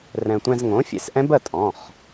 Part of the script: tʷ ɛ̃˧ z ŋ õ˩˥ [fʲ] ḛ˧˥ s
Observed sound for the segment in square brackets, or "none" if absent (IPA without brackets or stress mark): fʲ